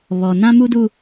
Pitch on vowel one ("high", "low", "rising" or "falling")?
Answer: low